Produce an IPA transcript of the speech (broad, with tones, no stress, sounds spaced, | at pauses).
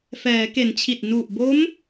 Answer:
f ɛː˩˦ k e˩˦ n t͡ɕʰ i˨˩ t̚ n u˨˩ ʔ b o˦˥ m